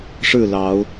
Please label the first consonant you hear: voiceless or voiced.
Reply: voiceless